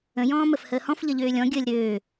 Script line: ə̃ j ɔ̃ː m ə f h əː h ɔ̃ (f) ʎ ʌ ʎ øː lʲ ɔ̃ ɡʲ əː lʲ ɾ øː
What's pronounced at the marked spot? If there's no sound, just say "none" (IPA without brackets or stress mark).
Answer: f